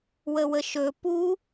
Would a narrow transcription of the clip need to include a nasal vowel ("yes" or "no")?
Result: no